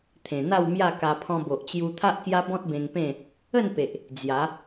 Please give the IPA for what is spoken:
t̪ʰ ẽ˨˩ n̪ a˥˧ w m j a˥˧ k a˧ pʰ ɔ̃˧ b o˨ ʔ t͡ɕ j u˧ t̪ʰ a˦ ʔ k j a˦ b ɔ̃˦ t̚ b ẽ˧ ŋ p ẽ˥˧ | ə˥˧ n p e˨ ʔ | d͡z j a˨˦

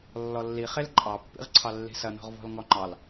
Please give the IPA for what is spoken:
lː ɔ lː i χ e l ǃʼ ɑ pː ḭ ʁ ǀʰ ɑ lː i̤ s ɐ n ɔ̤ ʁ v ɔ̤ l ŋ ɔ ŋ͡ǃ ɑ l

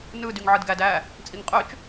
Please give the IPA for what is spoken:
n ɯ d y ŋ ʕ ɯ d ɡ æ d æ | t͡sʼ i ŋ qʼ ø t͡ʃ

